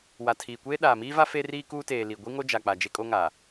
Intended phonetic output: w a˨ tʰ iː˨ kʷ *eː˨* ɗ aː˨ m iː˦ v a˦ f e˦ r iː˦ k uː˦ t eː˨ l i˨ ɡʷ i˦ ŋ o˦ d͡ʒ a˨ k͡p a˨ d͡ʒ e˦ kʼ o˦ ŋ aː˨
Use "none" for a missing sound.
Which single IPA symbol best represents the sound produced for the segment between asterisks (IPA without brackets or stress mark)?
eː˦